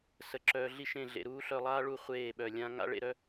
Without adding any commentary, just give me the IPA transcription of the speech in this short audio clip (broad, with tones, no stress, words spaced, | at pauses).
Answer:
sə˨˦ǁœː˧ɮi˦ʃẽ˦˨ ɮḛ˨ɾuː˦ɬœ˧lˠaː˦ ɭu˧ χʷeː˦˨ɓœ˨lʲã˦ ŋa̰˦ɭḛ˧ɾœ˧